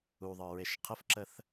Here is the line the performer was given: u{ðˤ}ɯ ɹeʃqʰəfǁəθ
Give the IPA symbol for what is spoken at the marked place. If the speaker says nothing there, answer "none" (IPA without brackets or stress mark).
ðˤ